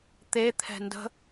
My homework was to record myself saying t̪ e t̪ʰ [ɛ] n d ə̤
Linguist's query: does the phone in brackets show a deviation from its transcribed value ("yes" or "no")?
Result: yes